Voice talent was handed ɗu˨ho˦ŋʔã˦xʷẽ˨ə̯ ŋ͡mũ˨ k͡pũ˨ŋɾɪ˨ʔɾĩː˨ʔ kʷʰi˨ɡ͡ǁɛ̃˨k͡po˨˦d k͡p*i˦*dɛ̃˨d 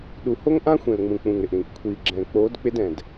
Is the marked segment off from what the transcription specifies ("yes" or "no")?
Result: yes